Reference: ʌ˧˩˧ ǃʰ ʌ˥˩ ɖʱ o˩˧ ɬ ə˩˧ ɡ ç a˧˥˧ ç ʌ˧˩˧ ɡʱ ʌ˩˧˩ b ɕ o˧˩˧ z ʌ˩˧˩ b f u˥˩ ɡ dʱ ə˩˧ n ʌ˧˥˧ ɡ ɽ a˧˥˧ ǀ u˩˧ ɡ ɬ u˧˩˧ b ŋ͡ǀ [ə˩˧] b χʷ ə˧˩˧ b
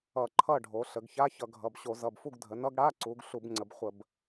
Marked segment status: correct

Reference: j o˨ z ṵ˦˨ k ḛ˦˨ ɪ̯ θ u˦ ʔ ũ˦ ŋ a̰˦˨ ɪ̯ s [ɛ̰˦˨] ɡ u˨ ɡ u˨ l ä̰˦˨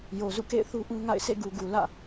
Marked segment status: incorrect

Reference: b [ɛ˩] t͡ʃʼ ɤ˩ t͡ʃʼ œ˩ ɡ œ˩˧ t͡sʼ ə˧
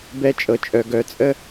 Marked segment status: incorrect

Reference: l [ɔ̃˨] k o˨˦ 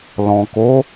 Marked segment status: correct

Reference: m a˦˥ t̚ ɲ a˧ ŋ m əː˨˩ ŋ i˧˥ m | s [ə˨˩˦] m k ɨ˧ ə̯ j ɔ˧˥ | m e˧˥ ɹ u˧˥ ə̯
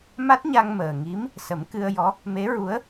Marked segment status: correct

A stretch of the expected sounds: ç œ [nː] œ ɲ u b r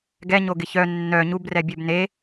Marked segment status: correct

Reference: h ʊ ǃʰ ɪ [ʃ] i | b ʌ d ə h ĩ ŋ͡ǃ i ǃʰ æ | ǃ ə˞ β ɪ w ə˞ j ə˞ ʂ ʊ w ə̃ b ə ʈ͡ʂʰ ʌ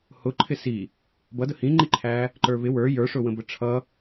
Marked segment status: incorrect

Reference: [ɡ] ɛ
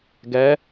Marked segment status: correct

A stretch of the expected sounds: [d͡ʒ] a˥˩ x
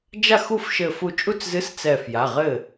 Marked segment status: correct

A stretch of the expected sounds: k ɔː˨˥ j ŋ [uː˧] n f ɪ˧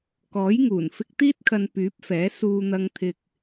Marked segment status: incorrect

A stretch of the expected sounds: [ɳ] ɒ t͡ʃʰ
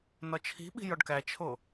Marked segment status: incorrect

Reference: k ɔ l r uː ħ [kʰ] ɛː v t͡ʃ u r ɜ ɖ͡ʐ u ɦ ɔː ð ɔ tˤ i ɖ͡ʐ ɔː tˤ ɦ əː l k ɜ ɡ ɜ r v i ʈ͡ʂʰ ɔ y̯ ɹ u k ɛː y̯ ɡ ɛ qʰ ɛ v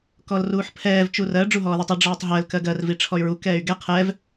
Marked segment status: incorrect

